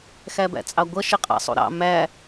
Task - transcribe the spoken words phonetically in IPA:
x æ b æ̰ t͡sʼ ɑ ɡʷ ʌ ʃ ɪ qʼ ɑ̰ sˤ ṵ ɾ ɑ̰ m æ

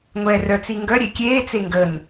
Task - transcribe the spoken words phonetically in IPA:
ŋʷ ɛː r œ t͡s i ŋ ɡ œ ɾʲ e kʲ eː t͡s e ŋ ɡ ə n

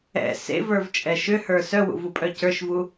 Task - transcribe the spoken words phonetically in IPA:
ɛ̰ s ḛ v ə˞ v t͡ʃʼ ɛ ʃ ʏ h ə˞ s œ w ṵ v u pʼ œ c ə˞ ʃ v u

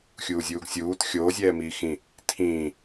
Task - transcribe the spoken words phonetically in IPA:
xʲ uː zʲ uː ɡ sʲ uː t xʲ oː zʲ ɛː m iː x ĩ | tʰ ĩː

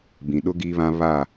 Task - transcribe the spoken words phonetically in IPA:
b ĩ˨ ɗ ʊ˦ ɡ iː˦ β ã˦ β a˦˨

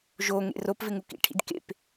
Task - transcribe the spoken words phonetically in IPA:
ʒ o ŋ ḛ r o p v ɪ ŋ u k ḭ ʈʰ ḭ d k ḛ p

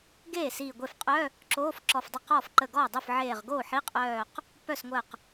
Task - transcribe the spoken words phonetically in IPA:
ɡ eː˥˩ s iː˧˩ ɡʷ e˥˩ f qʼ œ˧˥˧ | ǁ oː˧˥˧ f ǁ ɔ˧˩ f dˤ ə˥˩ q ɔː˥˩ f ǃ ə˧˩ ɡ ɔː˥˩ dˤ o˥˩ f ʕ eː˧˩ ʁ ɡ oː˥˩ ħ i˧˥˧ qʼ œː˧˩ q | p œ˥˩ s ŋʷ əː˧˩ q

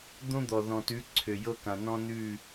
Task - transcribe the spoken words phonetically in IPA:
d̪ õ˦ d̪ ɔ˨ ð ɔ̃˨ t ʉ˨˦ ǀʰ ø˨ j ɤ˦ k ã˨ n ɔ̃˦ n ʉ˦˨

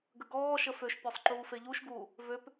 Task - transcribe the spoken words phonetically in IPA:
ɡ ə ɡ ɔː ʃ ə f ø ʃ pʲ ɔ sˤ ǃ uː f e ʎ u ʃ ɡ uː | v ø p

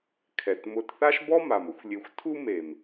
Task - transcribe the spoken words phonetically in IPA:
kʰ ɛ˨ t m ʊ˧ t θ a˦ ʃ b ɔ˦ m a˨ m ʊ˨˦ xʷ lʲ e˧ xʷ tʰ u˦ m e˨ m

